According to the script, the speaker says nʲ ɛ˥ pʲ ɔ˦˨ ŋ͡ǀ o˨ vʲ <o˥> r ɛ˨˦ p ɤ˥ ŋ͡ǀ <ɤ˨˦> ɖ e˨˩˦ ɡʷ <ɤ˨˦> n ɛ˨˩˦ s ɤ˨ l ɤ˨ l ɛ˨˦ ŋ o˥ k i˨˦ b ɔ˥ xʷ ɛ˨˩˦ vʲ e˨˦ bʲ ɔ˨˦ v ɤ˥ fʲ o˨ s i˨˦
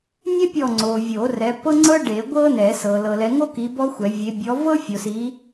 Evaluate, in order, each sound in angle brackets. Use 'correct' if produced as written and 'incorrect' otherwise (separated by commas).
incorrect, incorrect, incorrect